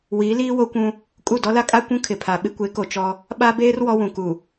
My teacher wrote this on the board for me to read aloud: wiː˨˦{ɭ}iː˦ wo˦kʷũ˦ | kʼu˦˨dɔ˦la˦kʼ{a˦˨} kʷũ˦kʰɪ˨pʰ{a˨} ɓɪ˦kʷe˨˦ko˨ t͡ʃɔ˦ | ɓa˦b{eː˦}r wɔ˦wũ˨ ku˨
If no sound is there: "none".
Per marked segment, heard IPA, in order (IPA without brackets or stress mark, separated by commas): l, a˦, a˨, eː˦